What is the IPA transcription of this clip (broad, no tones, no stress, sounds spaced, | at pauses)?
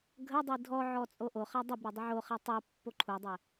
ɡʱ ə dˤ i dʱ ɔ ʕ ɔ t͡sʼ o ʔ o χ a dˤ ə b ɾ ɛ dˤ ə ʕ o χ ɛ tˤ o pː o ǃʰ u dˤ ɛ